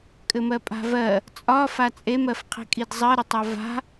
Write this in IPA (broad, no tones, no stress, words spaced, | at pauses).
kʼɘmɜpʼa̤vɜ | t͡sʼɒ fat͡sʼem ɜfqʰi̤kʼidzˤɜ ɾɘtˤɒva̤